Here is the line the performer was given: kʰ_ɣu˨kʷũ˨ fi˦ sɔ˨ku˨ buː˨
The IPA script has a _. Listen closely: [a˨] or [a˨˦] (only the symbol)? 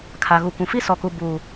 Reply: a˨